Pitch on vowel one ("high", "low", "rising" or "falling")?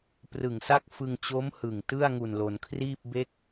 low